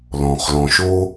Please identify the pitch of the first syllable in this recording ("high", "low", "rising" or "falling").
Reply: low